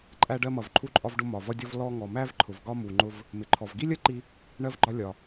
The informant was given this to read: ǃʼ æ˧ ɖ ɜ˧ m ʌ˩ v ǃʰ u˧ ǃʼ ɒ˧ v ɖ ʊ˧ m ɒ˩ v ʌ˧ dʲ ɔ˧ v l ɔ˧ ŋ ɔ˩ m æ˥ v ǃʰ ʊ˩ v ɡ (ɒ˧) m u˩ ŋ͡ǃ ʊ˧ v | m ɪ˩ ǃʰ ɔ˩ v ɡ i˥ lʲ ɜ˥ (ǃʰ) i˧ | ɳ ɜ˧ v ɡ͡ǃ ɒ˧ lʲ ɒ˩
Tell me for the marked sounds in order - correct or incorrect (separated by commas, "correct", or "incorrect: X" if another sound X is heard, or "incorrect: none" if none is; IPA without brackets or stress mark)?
correct, incorrect: ǃ